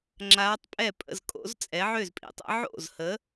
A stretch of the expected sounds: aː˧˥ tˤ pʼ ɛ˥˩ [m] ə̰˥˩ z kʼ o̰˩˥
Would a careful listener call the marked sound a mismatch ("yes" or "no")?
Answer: yes